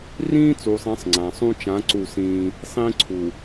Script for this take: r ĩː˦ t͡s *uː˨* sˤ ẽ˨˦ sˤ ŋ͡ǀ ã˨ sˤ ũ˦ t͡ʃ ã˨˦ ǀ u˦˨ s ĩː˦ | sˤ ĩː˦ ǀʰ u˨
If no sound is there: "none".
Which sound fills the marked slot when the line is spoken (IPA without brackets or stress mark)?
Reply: uː˨